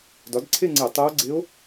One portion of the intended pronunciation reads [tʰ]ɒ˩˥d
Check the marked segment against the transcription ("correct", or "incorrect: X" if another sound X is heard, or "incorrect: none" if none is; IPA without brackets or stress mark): incorrect: d